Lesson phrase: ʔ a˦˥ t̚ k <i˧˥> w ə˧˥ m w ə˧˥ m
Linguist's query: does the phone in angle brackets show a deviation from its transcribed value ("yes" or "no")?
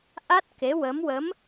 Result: yes